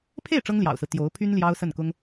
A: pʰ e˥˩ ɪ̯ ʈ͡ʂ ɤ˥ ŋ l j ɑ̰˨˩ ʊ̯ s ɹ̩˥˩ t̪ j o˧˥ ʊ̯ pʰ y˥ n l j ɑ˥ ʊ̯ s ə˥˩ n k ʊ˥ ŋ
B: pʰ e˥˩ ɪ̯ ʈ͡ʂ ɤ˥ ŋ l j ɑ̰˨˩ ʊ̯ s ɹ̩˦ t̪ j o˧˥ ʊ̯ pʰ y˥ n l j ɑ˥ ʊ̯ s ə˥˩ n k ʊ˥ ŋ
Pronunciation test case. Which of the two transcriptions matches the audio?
B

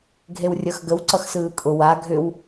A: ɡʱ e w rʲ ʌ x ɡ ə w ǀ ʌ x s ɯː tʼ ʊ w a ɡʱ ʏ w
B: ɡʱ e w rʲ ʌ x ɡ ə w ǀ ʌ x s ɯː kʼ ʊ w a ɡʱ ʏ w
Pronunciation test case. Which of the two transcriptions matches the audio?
B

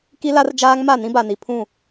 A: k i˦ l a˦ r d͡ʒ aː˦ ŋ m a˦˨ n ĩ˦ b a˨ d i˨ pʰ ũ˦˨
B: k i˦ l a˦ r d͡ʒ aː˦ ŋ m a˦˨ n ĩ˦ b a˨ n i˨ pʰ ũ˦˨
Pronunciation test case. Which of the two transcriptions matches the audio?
B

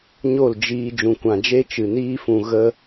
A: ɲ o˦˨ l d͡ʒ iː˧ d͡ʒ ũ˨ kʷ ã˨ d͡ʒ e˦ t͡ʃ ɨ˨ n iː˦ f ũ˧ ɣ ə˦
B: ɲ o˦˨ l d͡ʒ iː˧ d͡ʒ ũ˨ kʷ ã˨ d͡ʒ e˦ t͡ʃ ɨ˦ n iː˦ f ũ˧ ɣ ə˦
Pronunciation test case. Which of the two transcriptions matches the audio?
A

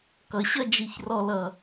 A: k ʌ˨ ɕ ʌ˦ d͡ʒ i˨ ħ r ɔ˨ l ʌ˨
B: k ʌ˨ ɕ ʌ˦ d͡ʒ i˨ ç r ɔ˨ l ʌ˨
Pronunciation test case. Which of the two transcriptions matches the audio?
B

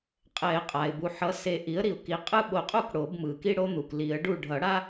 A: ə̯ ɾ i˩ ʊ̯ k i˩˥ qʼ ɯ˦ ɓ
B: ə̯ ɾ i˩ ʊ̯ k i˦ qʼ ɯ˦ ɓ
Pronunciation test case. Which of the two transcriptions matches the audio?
A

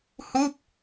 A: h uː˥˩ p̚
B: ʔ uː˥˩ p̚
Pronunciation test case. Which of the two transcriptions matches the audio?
A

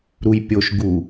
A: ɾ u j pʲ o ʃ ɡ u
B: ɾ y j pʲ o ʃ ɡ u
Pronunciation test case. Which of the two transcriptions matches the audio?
A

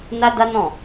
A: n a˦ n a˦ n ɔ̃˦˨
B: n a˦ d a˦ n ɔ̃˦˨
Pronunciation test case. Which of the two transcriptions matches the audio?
B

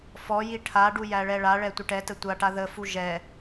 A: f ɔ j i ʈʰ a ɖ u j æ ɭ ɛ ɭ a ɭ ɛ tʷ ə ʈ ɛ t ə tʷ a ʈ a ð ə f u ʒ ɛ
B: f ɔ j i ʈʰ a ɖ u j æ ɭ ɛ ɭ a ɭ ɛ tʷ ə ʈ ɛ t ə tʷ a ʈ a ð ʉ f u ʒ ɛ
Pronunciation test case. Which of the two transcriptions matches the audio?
A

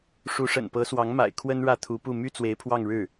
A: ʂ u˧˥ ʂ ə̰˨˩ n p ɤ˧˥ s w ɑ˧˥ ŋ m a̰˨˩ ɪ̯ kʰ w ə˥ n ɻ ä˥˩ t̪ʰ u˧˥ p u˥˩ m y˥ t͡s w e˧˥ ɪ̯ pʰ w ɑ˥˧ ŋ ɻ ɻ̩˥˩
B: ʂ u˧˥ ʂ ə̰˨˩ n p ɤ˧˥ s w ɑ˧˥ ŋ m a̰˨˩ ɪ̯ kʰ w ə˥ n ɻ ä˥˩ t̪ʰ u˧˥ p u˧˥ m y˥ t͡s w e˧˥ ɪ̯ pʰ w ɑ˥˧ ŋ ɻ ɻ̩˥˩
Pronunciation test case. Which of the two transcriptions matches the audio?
A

